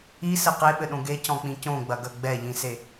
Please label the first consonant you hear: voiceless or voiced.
voiceless